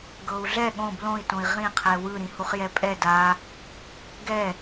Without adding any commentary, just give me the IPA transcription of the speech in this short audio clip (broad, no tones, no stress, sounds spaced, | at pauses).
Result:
ɡ ɤ u̯ ɮ ɛ ɠ õ b l õ i̯ t õ i̯ ʁ ĩ qʰ ɛ w ɯ ɾ ĩ h u χ j ɛ pʼ ɛ d a | ɡ ɛ